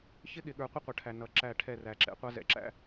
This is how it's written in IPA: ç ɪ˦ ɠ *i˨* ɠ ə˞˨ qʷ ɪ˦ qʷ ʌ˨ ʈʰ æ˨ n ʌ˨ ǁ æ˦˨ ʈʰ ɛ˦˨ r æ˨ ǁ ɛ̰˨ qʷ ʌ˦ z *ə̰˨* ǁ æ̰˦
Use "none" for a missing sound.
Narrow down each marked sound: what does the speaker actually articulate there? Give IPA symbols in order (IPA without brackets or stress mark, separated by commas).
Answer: ɪ˨, ɛ̰˨